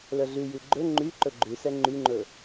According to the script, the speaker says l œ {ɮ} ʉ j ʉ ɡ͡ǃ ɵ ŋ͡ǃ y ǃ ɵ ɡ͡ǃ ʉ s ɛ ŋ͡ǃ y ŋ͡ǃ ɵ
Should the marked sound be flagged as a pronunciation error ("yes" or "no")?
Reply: no